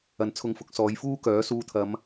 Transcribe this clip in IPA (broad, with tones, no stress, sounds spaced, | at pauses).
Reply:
ɐ˨ n t͡sʰ ʊ˧ ŋ f ʊ˨˥ k̚ s ɔː˨˧ j f uː˥ k œː˨˥ s uː˧ t̪ʰ ɐ˨˧ m